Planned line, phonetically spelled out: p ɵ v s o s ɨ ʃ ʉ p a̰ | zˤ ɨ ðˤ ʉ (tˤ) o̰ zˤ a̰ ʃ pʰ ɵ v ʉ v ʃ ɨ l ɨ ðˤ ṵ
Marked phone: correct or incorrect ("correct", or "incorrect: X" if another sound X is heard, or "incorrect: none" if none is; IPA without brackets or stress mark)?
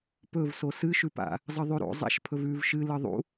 incorrect: ɾ